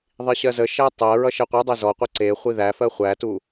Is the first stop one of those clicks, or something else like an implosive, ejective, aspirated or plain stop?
plain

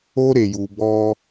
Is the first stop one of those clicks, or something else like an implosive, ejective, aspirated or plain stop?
plain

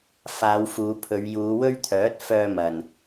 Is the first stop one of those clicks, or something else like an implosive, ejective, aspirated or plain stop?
aspirated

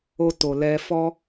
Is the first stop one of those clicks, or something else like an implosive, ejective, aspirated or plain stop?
plain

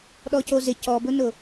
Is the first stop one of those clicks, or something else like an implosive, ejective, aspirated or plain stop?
implosive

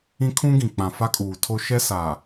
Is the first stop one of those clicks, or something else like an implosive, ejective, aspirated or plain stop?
aspirated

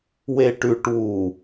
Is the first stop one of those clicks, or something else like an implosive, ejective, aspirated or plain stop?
plain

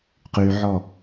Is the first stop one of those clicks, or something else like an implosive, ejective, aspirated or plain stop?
plain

